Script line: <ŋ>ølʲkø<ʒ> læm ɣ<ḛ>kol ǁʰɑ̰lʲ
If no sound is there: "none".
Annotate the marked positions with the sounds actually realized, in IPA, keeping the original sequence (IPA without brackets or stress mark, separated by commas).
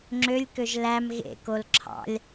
ŋ͡ǁ, ʒ, ḛ